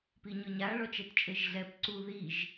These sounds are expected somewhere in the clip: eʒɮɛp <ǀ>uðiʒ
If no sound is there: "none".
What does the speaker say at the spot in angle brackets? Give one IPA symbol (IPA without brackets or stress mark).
ǀ